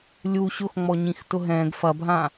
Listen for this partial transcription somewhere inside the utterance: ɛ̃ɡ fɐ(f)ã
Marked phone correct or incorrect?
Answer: incorrect